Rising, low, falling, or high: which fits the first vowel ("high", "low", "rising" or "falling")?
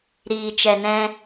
low